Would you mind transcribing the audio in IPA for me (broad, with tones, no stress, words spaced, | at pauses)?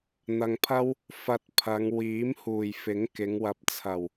n̪ɐ˨ŋpʰɐ˥w | fɐ˧t̚ pʰɐ˨˧ŋ wiː˨˥m huː˨˩jfɪ˨˥ŋkɪ˨˧ŋ wɐ˨p̚t͡sʰɐ˨˩w